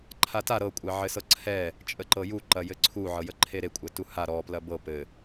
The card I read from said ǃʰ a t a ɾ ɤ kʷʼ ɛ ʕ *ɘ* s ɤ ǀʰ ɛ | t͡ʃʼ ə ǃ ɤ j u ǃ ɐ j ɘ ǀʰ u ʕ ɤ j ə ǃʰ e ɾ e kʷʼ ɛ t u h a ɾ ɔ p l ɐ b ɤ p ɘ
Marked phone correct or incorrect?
correct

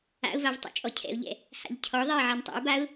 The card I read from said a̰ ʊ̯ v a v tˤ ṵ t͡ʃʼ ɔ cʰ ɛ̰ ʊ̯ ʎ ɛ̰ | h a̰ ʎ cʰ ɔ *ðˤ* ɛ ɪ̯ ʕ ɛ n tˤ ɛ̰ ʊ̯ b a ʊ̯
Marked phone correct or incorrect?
correct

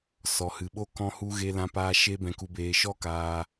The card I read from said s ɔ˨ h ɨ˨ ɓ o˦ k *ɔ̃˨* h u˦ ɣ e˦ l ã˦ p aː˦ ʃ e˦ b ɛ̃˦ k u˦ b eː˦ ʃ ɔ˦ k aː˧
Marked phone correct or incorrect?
incorrect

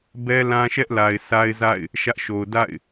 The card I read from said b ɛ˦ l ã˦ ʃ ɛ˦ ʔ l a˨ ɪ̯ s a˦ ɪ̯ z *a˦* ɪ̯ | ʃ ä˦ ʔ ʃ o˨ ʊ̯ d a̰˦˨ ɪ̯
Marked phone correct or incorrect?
incorrect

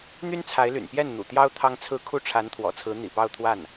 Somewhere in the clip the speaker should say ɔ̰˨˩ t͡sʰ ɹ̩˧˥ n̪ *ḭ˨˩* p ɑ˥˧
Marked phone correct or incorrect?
correct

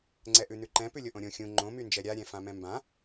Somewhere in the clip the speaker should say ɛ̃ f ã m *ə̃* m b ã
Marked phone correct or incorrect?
incorrect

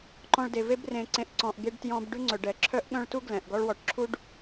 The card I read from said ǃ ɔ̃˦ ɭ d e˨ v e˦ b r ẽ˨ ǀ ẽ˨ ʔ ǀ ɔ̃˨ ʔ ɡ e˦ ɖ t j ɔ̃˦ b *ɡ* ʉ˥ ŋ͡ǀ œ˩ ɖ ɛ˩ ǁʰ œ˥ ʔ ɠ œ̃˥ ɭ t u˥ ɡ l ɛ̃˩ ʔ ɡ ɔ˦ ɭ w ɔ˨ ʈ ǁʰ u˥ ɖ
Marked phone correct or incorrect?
incorrect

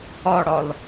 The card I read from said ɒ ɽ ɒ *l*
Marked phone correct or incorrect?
correct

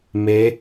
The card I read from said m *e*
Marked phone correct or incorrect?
correct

